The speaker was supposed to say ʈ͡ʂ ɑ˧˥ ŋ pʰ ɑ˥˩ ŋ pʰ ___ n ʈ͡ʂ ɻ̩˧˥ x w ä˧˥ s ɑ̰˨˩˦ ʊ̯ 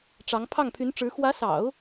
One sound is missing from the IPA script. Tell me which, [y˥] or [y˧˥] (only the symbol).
y˧˥